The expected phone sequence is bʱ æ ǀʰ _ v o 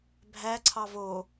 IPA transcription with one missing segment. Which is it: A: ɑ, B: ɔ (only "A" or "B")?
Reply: A